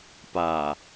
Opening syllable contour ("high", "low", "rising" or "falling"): low